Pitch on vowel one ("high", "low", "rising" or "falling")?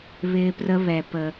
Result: high